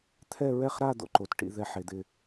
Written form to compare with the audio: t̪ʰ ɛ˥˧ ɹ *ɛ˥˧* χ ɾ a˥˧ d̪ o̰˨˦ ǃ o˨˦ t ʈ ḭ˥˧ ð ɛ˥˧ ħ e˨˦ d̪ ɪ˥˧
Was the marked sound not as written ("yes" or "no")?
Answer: no